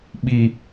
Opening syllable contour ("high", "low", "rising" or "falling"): low